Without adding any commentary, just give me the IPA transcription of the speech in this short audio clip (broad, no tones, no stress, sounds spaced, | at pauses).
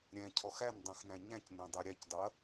ɾʲ ɛ̃ cʰ ɔ x æ n dˤ ũ x n æ̃ ɲ æ̃ c n ɛ̃ dˤ ɛ ɾʲ æ c dˤ u ɐ̯